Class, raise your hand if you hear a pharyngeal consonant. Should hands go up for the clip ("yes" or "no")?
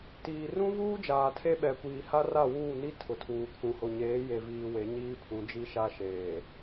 no